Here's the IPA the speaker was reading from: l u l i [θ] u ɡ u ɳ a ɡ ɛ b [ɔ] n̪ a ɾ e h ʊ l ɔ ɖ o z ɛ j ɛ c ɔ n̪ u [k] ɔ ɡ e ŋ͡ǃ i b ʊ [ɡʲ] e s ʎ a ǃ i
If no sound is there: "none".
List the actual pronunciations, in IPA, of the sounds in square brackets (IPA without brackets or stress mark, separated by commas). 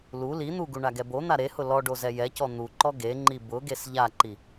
n̪, o, ǃ, ɡ